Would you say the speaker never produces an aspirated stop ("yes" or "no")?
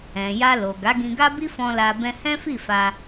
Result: yes